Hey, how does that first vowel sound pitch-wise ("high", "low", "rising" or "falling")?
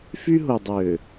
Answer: high